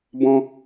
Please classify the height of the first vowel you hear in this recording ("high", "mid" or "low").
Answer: mid